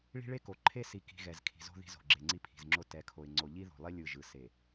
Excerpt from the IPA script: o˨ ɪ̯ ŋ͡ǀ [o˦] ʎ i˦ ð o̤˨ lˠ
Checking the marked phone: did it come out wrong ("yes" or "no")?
yes